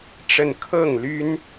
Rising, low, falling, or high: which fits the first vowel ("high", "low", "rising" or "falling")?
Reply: falling